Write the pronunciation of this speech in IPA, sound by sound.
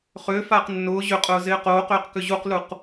χ ʏː f aː q nː ʊː ʑ ʏ qʼ ʊː z ɪː q oː q ʏː q k ʏ ʑ u q l u q

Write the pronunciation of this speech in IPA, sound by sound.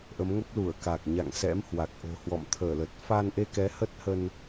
ʔ ə˨˦ m ŋ ə˦˥ p̚ l u˧˩ ə̯ k a˨˩ k̚ ɲ a̰˧˨ ŋ s ɛ̰˧˥ m h w a˨˩ k̚ ʔ o̤˨˩ h w ɔ̰˧˨ m t̪ʰ əː˧˩ l ə˨˩ t̚ f a˧ n ʔ e˧ k ɛ˨˦ h ə˦˥ t̚ h ə˧ n

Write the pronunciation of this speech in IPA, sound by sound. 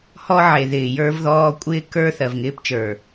h ɔ˦ ʕ e˨ ð ɪː˨ j ə˞˦ v ð ɔː˦ kʷʼ ɪː˦ k ə˞˦ θ ɜ˨ v ŋ ɪː˦ p t͡ʃ ə˞˨

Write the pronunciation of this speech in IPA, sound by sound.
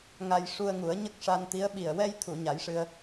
ŋ a˧ j ʂ u˧ ə̯ ŋ u˨˩˦ ə̯ ɲ ə˦˥ k̚ ʂ a˧ n t̪ i˧˥ ə̯ ɓ i˨˩ ə̯ w ɛ˧ j t̪ʰ u˨˩˨ ɲ a˨˩˦ j ʂ ɨ˧ ə̯

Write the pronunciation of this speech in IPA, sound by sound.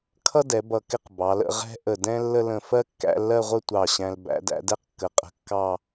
kʰ ʌ˥ d ɛ˩˧ b ʌ˧˩ k ɪ˥˧ q b ɑ˩˧ l ə̰˥˧ ʁ ɛ̤˥ ʔ ə˧˩ d ɛ̃˥ lː ə˥˧ l ə̃˧˩ f ɜ˥ kː æ̰˥˧ lː ɜ˥˧ ʁʷ ə˥˧ tʷ ɑ˧˩ ɕ æ̃˧ l b æ̰˩˧ d æ̰˧ d ɛ˥˧ q kː ə˩˧ qʼ ə̤˧ kː ɑ˥˧

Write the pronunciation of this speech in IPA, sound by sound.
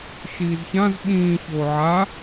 ʃ iː z ç ã z ɓ ĩː ç oː ʕ a

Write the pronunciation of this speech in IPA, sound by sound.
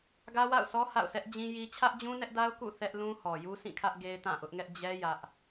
ɡ ä˦ w a̰˦˨ ʊ̯ sʰ ɔ˦ h a̰˦˨ ʊ̯ sʰ ɛ˦ ʔ d͡ʑ ĩ˦ j i˦ t͡ɕʰ ä˦ ʔ d͡ʑ ũ˦ n ɛ˦ ʔ d a˦ ʊ̯ k ṵ˦˨ θ ɛ˦ ʔ l ũ˦ h ɔ˨ j u˦ sʰ ĩ˦˨ kʰ ä˦ ʔ ɡ e˦ ɪ̯ t ã˦˨ ʔ ʊ˦ ʔ ŋ ɛ˦ ʔ d͡ʑ ɛ˦ j ä˦ ʔ

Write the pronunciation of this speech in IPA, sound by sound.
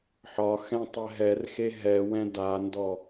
ħ ɒ x ɛ̃ tˤ ɛ ɦ ɛ r x e ɦ ɛ w ɛ̃ d a n d ɔ

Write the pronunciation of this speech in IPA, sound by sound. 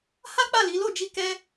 h a˦ k͡p a˦˨ l i˨˦ l o˦˨ d͡ʒ i˧ k ɛ˦

